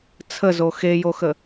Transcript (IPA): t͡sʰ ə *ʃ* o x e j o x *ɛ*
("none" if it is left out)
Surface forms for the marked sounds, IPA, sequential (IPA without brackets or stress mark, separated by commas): z, ə